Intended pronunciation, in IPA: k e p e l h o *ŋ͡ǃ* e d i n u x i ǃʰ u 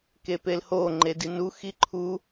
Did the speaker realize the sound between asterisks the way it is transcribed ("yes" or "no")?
yes